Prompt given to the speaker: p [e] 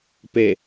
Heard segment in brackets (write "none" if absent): e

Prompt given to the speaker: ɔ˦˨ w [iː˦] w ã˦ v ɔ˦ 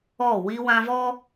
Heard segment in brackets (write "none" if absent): i˦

